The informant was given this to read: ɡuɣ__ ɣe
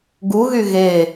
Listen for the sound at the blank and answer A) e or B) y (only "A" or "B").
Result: B